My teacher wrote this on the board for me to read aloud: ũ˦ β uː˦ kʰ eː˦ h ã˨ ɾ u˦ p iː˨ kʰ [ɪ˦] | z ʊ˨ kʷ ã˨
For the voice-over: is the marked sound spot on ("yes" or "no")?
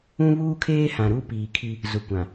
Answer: no